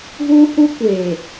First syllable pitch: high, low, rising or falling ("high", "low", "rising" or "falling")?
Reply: high